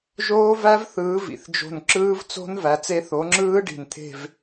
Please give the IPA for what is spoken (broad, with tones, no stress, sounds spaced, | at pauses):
ʒ oː˦˥ v æ˦˥ v θ ɯː˨˦ v ḭ˨˩ θ d͡ʒ o̤˦˨ n ǁ ɯː˦˥ v t͡s o̤˦˥ n v æ˨˦ t͡s e˦˥ θ o˨˦ ŋ͡ǁ ɯː˦˥ ɖ i̤˨˩ n t̪ʰ e̤˦˨ v